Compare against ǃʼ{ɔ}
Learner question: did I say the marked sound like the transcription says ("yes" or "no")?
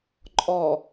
yes